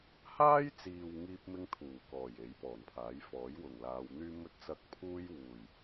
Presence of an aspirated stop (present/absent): present